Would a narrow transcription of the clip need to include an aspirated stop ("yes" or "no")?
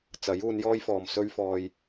no